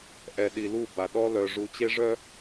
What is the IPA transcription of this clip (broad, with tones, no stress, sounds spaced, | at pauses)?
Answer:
ʔ ɛ˨ ɗ i˨ l u˦˨ b a˨ ɗ ɔ˦ l œ˨ ʐ u˨˦ t͡ɕ e˦ ʐ œ˦